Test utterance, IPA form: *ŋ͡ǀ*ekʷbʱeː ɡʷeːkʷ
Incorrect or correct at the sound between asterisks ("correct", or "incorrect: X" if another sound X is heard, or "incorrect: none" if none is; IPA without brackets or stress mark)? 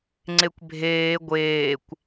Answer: correct